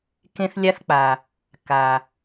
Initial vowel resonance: nasal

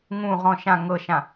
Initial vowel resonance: nasal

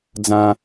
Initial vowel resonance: nasal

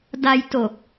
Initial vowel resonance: oral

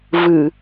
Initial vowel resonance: oral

